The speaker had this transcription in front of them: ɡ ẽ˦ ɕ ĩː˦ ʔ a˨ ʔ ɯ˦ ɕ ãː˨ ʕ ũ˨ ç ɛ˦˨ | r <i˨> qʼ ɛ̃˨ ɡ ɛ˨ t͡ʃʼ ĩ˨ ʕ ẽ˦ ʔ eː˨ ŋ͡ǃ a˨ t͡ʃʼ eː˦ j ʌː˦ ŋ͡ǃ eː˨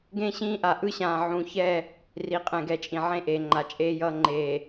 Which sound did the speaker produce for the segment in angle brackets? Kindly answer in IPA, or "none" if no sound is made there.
i˨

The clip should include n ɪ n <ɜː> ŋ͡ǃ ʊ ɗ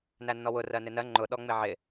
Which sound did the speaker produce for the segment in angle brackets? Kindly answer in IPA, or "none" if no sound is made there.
ɜ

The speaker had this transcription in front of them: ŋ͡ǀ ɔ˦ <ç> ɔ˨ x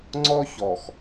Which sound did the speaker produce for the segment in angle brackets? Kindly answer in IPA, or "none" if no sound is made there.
ç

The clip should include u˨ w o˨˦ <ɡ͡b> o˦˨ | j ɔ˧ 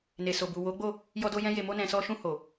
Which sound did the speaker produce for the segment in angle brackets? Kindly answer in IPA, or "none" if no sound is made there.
ɡ͡b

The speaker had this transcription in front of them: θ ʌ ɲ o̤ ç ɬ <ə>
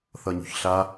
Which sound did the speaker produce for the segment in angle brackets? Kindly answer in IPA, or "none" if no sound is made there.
a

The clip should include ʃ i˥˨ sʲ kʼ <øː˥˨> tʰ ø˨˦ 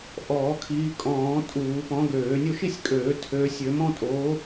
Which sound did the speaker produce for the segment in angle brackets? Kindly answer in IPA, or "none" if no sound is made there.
øː˨˩˦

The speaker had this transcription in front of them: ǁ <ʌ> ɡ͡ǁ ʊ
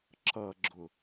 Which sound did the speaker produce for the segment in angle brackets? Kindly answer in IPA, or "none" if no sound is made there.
ʌ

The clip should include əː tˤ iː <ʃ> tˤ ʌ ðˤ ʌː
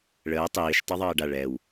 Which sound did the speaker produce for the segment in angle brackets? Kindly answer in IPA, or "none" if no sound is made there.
ʃ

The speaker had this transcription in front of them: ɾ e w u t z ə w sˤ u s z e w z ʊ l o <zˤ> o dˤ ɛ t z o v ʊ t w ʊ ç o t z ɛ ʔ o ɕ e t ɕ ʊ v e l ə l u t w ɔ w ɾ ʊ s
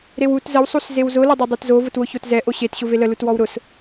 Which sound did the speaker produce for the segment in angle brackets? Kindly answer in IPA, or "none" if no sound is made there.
dˤ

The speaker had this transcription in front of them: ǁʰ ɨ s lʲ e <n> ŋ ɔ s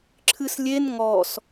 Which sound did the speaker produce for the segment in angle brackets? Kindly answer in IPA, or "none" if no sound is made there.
n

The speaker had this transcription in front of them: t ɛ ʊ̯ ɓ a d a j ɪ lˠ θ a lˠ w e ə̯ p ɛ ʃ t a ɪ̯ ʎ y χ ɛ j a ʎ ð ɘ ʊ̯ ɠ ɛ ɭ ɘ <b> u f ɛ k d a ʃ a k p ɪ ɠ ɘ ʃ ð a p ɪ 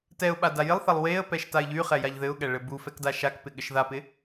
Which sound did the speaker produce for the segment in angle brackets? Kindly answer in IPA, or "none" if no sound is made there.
b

